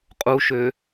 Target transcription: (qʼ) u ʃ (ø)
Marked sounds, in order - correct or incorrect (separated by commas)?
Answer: correct, correct